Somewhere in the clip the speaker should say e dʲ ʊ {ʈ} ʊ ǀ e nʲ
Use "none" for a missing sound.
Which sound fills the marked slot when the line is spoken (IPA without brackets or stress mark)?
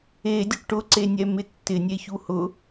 ʈ